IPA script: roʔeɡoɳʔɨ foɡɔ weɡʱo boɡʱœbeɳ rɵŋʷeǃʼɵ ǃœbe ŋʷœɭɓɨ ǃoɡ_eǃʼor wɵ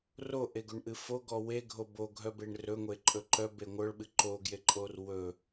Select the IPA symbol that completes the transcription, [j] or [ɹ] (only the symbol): j